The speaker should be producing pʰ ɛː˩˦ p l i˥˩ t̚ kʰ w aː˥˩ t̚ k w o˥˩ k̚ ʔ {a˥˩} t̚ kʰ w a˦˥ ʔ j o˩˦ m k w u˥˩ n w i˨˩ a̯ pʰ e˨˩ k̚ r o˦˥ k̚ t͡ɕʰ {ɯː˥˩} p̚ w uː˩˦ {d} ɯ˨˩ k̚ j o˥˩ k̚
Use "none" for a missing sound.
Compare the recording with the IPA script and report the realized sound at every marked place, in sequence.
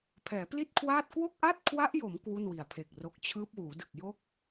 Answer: a˥˩, ɯː˦˥, d

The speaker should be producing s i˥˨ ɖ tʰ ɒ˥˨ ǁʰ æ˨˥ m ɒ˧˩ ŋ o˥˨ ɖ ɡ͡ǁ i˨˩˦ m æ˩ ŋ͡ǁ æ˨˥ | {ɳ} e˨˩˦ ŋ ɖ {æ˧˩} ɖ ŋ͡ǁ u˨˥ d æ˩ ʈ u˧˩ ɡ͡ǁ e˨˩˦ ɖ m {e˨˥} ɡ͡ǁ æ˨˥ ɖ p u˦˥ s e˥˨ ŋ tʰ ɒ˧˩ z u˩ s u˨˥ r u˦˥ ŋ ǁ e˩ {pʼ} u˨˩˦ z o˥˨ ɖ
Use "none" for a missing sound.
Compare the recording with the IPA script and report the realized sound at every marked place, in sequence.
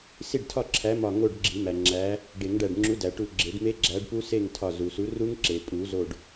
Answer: ɖ, æ˧˩, e˦˥, pʼ

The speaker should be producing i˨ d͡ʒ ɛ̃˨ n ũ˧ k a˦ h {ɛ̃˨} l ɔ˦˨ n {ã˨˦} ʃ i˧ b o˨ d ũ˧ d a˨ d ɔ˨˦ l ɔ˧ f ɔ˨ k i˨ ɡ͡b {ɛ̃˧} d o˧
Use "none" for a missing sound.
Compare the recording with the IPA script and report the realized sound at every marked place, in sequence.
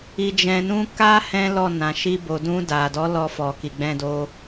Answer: ɛ̃˦, ã˨, ɛ̃˧

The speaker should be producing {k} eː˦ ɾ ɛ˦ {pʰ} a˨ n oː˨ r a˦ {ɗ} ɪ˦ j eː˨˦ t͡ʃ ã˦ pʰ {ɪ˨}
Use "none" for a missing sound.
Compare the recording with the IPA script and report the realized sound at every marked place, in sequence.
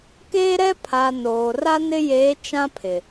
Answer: k, pʰ, n, ɪ˨

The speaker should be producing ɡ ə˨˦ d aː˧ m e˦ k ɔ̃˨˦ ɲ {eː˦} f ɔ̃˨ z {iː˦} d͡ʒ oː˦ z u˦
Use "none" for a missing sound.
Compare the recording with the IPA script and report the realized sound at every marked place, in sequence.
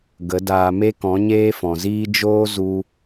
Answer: eː˦, iː˦

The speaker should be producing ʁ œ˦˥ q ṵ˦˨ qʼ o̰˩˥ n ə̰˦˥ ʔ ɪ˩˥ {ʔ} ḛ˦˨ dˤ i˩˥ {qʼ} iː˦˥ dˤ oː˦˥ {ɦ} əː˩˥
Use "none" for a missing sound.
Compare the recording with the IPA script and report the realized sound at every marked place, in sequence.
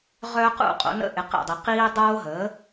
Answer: q, q, ɦ

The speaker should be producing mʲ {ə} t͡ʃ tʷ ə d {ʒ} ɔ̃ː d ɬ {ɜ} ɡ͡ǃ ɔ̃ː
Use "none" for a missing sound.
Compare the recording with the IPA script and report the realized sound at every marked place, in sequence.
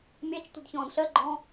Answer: a, ç, ɜ

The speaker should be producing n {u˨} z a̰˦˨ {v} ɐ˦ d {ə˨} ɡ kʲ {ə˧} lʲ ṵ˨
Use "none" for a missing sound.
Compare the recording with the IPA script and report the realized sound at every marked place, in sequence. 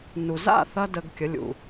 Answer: u˨, θ, ə˧, ə˨˦

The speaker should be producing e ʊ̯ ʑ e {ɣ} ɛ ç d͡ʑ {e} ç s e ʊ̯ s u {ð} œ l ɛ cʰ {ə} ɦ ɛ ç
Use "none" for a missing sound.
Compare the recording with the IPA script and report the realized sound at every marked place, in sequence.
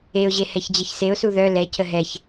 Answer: h, ɛ, ð, ə

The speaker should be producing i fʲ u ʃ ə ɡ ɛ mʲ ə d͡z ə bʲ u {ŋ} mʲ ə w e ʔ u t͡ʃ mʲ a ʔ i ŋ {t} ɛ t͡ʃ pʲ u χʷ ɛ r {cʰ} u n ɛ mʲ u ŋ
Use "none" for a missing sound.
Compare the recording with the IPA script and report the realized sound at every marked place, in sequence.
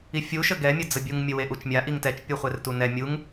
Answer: ŋ, t, t

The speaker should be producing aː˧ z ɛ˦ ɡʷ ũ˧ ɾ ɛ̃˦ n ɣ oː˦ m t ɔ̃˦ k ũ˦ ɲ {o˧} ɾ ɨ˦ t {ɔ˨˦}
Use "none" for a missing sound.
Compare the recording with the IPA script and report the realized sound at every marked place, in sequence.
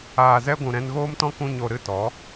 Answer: o˧, ɔ˨˦

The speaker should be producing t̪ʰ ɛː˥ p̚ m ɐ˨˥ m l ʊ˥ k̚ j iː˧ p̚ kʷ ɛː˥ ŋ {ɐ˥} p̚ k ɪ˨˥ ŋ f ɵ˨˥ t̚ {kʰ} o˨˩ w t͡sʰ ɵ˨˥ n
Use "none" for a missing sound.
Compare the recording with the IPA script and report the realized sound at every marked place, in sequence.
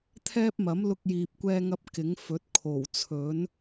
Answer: ɐ˥, kʰ

